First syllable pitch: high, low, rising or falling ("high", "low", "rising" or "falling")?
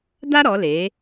high